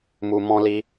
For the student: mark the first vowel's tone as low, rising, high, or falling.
high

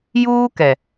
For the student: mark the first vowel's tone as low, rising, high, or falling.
high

